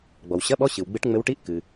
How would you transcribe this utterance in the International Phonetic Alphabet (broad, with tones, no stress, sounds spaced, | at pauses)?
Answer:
ɡ͡b ɔ˩ w ɕ ɐ˧˥˧ ɓ ɔ˧˥˧ ɕ ɨ˩ w ɡ͡b ɨ˧˥ ʈ ŋ͡m ɘ˧˥ w ʈ i˧˥˧ ʔ k ɨ˩